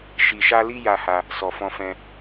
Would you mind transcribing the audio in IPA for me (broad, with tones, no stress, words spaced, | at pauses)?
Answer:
ʃi˨ʃa˧li˧ ja˧ ha˧ | sɔ˨fɔ̃˧fɛ̃˧